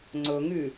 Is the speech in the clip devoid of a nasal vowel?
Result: yes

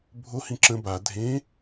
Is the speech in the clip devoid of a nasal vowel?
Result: no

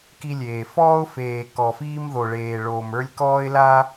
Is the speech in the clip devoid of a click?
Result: yes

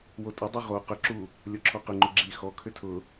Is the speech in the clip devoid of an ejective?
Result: no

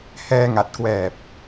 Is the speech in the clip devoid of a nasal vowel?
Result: yes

